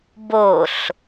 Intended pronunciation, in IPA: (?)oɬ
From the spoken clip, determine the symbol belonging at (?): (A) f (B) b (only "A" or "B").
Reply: B